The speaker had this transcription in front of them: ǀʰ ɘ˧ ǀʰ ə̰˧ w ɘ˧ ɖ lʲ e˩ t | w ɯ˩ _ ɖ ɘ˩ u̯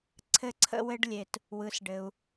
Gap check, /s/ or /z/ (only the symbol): s